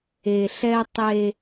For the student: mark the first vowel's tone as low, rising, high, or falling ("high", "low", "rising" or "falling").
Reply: low